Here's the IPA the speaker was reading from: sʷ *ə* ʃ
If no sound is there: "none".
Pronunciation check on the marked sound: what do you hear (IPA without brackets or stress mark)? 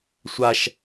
a